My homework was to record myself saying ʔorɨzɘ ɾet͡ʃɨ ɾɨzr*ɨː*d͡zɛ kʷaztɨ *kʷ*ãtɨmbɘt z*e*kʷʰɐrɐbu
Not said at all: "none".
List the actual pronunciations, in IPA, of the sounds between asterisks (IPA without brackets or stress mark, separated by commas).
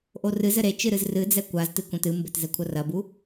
ɨ, kʷ, ɘ